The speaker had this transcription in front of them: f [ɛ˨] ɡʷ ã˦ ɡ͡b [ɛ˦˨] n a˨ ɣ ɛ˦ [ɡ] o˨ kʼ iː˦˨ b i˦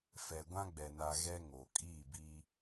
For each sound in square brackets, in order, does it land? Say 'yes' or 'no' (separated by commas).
yes, no, no